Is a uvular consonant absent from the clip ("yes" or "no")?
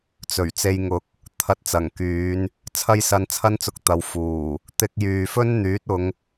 yes